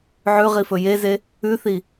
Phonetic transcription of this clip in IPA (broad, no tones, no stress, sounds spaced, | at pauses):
ʕ ʉ ʁ i f ɵ j e z e | ʉ θ i